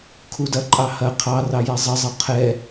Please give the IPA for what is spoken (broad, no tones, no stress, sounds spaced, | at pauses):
kʰ u d ɐ ǃʼ ɑ h ɐ qʰ ɑ r ɑ j ɛ zˤ ə zˤ ɤ qʰ ɛ